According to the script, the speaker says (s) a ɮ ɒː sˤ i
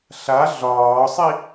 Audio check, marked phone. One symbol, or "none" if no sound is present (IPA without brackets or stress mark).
ɬ